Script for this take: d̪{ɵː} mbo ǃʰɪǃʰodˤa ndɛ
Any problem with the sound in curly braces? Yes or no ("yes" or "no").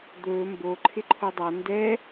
no